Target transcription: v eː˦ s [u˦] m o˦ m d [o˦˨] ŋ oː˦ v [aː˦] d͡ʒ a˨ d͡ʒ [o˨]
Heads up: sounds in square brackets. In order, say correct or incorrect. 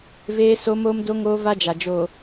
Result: incorrect: o˦, incorrect: o˦, incorrect: a˦, incorrect: oː˨

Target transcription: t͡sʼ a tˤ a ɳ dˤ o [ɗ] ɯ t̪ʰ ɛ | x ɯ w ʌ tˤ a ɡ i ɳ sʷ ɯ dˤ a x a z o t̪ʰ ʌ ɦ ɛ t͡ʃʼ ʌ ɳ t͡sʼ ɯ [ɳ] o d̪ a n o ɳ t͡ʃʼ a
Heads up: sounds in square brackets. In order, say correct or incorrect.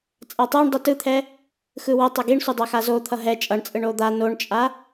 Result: incorrect: t, correct

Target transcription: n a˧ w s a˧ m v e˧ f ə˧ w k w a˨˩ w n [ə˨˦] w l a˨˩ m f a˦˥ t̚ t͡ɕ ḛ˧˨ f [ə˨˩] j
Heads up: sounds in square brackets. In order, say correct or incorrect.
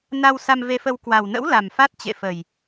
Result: incorrect: ə̰˧˥, correct

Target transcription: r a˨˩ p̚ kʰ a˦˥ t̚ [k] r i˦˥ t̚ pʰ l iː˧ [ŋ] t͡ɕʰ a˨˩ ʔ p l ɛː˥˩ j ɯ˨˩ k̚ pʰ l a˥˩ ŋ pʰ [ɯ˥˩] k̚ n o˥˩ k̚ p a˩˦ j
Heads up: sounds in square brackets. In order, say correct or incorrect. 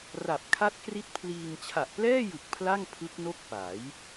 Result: correct, correct, incorrect: ɯ˦˥

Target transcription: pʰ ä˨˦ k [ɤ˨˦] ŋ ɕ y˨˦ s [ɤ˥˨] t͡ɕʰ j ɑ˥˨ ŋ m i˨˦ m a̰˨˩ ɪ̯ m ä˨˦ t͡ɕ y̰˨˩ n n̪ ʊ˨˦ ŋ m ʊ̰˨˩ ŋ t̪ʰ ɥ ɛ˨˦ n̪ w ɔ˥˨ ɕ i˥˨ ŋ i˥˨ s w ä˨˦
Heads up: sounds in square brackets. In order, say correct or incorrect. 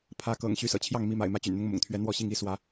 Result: incorrect: ɤ̰˨˩, incorrect: ɤ̰˨˩

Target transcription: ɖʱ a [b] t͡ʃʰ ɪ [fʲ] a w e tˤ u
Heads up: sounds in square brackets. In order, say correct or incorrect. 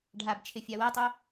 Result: correct, correct

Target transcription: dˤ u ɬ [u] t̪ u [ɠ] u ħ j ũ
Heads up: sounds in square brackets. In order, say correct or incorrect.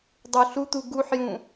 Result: correct, incorrect: ɡ

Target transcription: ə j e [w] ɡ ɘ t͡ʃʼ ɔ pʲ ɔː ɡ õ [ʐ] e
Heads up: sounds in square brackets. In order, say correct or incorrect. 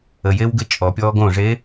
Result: correct, correct

